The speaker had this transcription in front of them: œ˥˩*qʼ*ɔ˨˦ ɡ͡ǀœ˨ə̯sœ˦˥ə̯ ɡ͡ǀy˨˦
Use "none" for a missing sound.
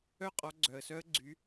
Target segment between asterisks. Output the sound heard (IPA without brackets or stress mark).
qʼ